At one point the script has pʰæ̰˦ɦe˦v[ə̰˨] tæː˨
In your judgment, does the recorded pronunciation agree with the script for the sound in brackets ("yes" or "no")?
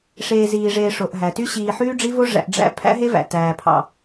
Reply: no